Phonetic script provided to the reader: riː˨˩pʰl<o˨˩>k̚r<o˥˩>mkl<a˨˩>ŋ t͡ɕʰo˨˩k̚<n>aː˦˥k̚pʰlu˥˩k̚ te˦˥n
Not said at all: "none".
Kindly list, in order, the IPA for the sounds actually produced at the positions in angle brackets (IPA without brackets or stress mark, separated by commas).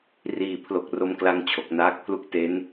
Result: o˨˩, o˧, a˦˥, n